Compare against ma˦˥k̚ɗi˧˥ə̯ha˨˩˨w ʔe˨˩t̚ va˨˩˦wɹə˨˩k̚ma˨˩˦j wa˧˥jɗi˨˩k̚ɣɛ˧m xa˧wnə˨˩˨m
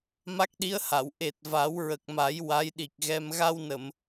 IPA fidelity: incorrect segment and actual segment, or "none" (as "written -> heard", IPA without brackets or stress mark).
x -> ɣ